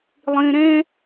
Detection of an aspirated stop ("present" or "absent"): absent